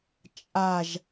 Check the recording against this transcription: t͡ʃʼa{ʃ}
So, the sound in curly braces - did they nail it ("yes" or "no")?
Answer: no